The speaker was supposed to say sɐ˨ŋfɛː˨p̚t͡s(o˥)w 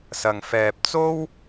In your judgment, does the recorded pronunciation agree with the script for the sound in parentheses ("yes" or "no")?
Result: yes